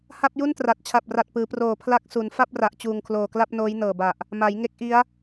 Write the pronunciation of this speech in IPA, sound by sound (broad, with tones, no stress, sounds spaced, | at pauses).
h a˥˩ p̚ j u˥˩ n t r a˨˩ t̚ t͡ɕʰ a˨˩ p̚ r a˨˩ t̚ p ɯː˩˦ p r oː˨˩ pʰ l a˦˥ k̚ s u˩˦ n f a˥˩ p̚ r a˨˩ ʔ t͡ɕ uː˨˩ ŋ kʰ l oː˨˩ k l a˥˩ p̚ n oː˦˥ j n ɤː˨˩ b a˨˩ ʔ | m a˩˦ j ŋ e˦˥ k̚ ʔ i˦˥ a̯